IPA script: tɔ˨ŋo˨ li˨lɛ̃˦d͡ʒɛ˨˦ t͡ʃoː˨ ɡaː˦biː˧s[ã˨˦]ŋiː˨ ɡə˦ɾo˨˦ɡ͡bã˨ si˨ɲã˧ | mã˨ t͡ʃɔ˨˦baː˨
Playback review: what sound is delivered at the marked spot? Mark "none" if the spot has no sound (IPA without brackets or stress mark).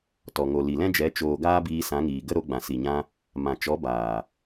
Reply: ã˨˦